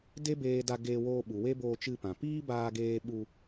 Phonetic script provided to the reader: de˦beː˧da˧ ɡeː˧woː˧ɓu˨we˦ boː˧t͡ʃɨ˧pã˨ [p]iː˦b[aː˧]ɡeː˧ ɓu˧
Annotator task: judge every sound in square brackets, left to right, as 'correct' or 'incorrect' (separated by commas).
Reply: correct, correct